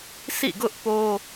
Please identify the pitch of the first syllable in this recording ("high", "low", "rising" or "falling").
falling